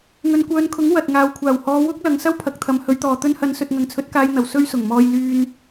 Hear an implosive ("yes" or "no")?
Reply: no